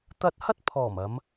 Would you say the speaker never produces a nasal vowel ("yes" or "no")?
yes